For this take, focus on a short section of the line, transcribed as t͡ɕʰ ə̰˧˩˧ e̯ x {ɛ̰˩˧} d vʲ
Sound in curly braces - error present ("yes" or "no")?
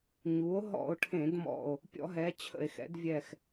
no